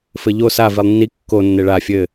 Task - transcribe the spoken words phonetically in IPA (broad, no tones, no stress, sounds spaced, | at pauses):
f ɘ ʎ o s a v i lˠ nː i kː o nː e ɭ a fʲ ɘ